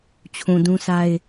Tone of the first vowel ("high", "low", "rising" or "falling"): low